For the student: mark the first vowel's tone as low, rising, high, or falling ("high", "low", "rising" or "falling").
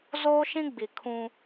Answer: high